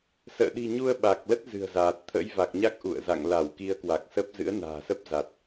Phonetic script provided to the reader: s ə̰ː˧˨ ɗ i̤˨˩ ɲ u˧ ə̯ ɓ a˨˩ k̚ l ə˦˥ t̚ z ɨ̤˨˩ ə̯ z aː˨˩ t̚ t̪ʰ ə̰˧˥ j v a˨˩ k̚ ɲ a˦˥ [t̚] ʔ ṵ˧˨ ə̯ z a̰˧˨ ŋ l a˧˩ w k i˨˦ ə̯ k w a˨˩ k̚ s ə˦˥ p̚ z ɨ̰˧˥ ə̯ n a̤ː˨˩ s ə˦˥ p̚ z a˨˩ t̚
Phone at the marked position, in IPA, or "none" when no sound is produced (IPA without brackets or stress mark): k̚